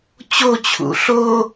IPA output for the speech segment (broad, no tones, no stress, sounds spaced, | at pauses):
t͡ɕ o t͡ɕʰ ṵ ɬ o